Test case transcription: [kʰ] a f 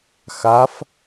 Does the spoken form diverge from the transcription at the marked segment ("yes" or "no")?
yes